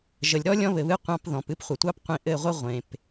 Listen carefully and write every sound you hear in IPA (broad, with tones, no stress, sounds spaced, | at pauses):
ʒ ə˨ lʲ ɾ ɔ˦ lʲ ɔ̃˧ β ɘ˨ β ɨ˧ qʷ ɑ̃˧ p ð ɔ̃˨ p ɨ˦ p χʷ ə˨ tʷ ɑ˦ p qʷ ĩ˧ ʔ ɘ˦˨ ʁʷ ə˦ ʁʷ ẽ˨ p